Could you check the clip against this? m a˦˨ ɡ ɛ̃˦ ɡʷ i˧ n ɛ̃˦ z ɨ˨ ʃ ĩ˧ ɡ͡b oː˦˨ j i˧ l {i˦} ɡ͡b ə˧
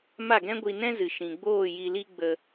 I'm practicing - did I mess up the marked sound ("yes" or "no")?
no